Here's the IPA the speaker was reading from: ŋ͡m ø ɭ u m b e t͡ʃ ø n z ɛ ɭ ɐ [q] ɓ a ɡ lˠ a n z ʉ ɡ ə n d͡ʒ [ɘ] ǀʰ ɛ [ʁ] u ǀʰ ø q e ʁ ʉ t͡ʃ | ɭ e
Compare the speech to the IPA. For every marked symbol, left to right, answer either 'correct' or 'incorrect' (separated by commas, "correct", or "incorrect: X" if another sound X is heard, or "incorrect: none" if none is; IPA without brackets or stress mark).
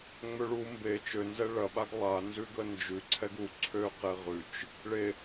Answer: incorrect: none, incorrect: ʉ, incorrect: ɡ